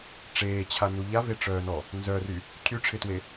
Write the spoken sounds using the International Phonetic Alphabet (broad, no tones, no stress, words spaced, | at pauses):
ʈ͡ʂeːt͡ɕʰanu ʎaveʈ͡ʂœːnɔ | nzœry | cʰyʈ͡ʂʰɪtwe